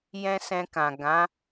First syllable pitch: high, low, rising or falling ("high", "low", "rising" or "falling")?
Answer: high